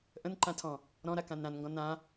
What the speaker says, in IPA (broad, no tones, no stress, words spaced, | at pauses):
ʔə̃nǃãtʰɔ̃ | ɾɔ̃ɾakãn ɾãnŋɡɔ̃ nã